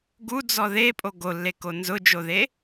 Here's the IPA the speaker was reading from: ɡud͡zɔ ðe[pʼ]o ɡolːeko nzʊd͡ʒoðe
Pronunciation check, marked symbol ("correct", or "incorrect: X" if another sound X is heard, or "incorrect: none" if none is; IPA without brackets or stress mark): correct